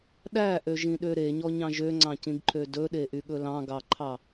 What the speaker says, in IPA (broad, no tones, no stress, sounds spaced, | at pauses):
ɗ æ ʔ ø ʒ ĩ ɗ ø ɾ e ɲ ɔ ɲ ɑ̃ ʒ ø ŋ͡ǀ ɑ̃ c ĩ ɡ ǃʰ ø d ɵ ɗ e ʔ y ɠ ɵ l ɑ̃ ɡ ɑ ǃʰ ɑ